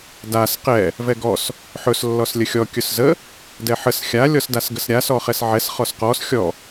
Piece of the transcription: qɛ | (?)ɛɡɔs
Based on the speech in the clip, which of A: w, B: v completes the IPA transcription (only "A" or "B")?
B